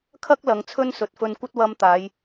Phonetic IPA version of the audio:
kʰ ɐ˥ k̚ l ɐ˨˧ ŋ t͡sʰ ɵ˥ n s ɵ˨ t̚ f ɵ˧ n kʷ ɐ˥ t̚ w ɐ˧ m t̪ aː˨˧ j

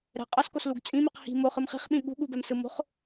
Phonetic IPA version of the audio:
ɾ ɛ̤ qʼ ʌ s k o s l u ɡ t͡sʼ ĩ m i q h i̤ m o χ ɯ m χ i̤ χ ɓ ĩ ɠ ṳ ɠ u b ɛ m s ɯ m o̤ χ

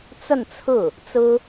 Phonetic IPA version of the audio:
t͡s ə˥˧ n t͡sʰ ɹ̩˥˩ | t͡s ɹ̩˥

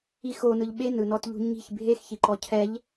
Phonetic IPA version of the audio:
i x o n ɯ ʎ ɓ e n ɯ n ɔ t ʎ ṳ ɲ i̤ ç bʱ e x ç i ǃ ɔ cʰ ɛ ʎ

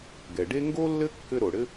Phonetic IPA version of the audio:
ɡ ɛ˩ ɖ e˥ ŋ ɡ o˥ lː ɘ˥ kː ɘ˥ ɾ o˩ ɽ ɘ˥

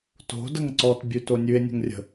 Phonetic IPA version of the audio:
t o̤ d ə ŋ ǀ ɔ t bʲ ʉ t o nʲ ʉ e̯ nʲ ə̤ ŋ rʲ ə̤

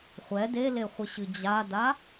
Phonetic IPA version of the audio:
χʷ ɛ d e l e χʷ ɨ ɕ ɨ d͡ʑ a d a

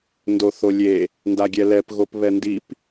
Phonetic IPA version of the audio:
n d o θ o lʲ e | n d a ɡʲ ɛ l ɛ p ɣ o p β ɛ n d i p

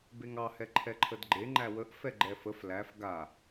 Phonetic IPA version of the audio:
b e ŋ ɑ h ɛ ǃʰ ɛ ǃʰ ə d ɡ͡ǃ e ŋ͡ǃ æ w ə ʔ f ɛ ɡ͡ǃ ɛ f ə f l æ f ɡ a

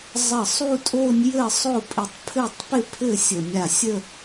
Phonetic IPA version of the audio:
zˤ ə˧˩ sˤ u˥˧ tʼ o˥˧ nʲ j ɘ˥˧ sˤ o˥˧ pʼ ɪ˧˩ tˤ pʰ ɘ˥˧ tˤ p ɪ˥˧ pʰ ɘ˥˧ sʲ ə˧˩ mʲ a˧˩ sʲ ə˥˧

